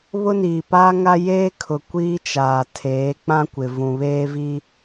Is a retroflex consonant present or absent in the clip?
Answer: absent